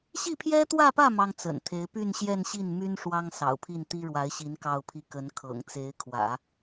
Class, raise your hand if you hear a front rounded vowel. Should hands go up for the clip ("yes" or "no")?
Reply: yes